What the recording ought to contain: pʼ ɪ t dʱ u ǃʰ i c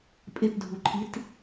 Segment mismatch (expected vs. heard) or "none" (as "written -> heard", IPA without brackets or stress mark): c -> t